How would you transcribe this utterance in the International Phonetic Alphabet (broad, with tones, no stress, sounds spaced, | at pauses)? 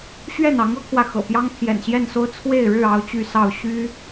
ɕ ɥ ɛ˥˨ n ɑ˨˦ ŋ ɤ˦ kʰ w ä˨ x ɤ̰˨˩ p j ɑ˦ ŋ pʰ j ɛ̰˨˩ n ɕ j ɛ˥˨ n s o˦ ʊ̯ t͡sʰ w e˥˨ ɪ̯ ɻ ɻ̩˥˨ ɑ˦ ʊ̯ t͡ɕ y˥˨ s ɑ˥˨ ʊ̯ ɕ y˦